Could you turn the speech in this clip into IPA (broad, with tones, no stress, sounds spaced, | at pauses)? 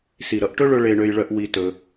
s i˨ ɾ ʌ˧ ʔ ʈ ɵ˦ ɭ ɵ˧ ɭ e˧ ɳ ø˧ j ɭ œ˧ ʔ w i˧ t ɵ˧